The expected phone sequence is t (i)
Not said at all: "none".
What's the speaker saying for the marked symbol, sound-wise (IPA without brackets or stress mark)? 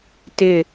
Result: ɪ